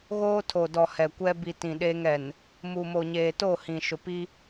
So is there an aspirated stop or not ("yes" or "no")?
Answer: yes